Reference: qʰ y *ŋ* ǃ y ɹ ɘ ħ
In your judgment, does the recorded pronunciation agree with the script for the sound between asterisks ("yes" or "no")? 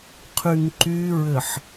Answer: yes